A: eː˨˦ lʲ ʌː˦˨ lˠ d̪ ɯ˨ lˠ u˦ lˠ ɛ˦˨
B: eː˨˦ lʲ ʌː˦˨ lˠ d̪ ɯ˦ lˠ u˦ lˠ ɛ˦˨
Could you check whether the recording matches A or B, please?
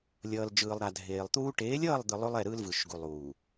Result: A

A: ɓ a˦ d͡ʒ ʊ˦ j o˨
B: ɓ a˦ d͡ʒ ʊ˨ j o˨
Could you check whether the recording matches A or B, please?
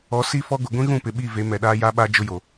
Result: A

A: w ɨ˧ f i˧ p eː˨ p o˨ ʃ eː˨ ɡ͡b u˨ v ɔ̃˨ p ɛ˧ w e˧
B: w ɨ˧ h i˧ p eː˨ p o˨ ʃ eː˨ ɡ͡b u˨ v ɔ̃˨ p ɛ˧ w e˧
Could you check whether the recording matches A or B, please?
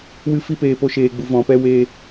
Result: A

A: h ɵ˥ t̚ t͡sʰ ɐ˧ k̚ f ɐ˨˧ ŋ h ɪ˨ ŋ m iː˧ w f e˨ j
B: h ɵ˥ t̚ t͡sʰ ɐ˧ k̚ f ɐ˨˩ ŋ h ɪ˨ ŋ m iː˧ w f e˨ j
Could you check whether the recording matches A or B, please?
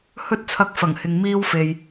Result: B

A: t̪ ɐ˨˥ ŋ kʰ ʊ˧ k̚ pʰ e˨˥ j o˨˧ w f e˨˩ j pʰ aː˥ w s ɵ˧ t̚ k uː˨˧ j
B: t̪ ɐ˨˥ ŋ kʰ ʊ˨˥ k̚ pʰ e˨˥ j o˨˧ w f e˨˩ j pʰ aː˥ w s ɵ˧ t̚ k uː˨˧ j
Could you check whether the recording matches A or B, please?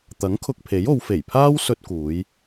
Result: A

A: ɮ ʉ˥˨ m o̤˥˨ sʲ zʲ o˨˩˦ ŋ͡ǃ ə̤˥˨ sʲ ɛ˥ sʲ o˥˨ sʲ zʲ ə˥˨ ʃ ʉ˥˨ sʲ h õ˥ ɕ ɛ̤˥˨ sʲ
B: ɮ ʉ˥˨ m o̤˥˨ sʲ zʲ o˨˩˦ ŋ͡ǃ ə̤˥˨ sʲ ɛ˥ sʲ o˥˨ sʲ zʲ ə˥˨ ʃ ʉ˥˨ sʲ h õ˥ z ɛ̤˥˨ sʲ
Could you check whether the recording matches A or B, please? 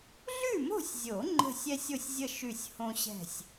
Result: A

